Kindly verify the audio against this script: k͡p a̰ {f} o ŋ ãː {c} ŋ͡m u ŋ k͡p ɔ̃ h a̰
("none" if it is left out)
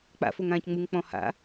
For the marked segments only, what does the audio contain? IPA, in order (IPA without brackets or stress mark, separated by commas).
f, c